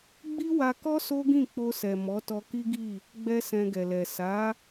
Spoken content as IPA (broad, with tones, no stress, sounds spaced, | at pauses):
ɡ͡b i˦ w a˧ k ɔ˦ s o˦ ɡ ĩ˦˨ k͡p o˧ s ɛ˨ m ɔ˨˦ t ɔ˧ k i˦ ɡ i˦˨ | ɡ͡b ɛ˦ s ɛ̃˧ ɡ ɛ˨ l ɛ˨ s a˨˦